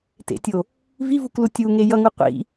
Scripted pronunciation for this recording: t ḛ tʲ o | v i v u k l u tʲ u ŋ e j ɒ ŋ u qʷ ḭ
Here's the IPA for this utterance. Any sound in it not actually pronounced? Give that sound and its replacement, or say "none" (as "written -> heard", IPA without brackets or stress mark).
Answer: ɒ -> ʌ